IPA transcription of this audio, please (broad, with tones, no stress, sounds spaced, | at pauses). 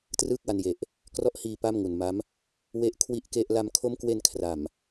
t r ɯː˥˩ k̚ w a˧ n j e˨˩ ʔ | k r ɔ˦˥ ʔ h iː˧ p a˥˩ m ŋ u˨˩ n m a˦˥ m | w e˥˩ ʔ kʰ w i˥˩ ʔ k e˥˩ ʔ l a˧ m kʰ o˦˥ m k w e˧ n kʰ r a˨˩ m